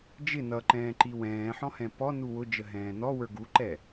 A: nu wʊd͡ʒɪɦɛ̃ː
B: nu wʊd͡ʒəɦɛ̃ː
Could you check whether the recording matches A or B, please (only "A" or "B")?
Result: B